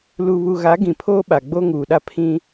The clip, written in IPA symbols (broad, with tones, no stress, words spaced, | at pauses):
lu˨βu˨ɣa˨˦ ɡĩ˨pʰoː˦ɓa˨ ɡ͡bo˦ŋuː˨ɗa˦ pʰĩ˦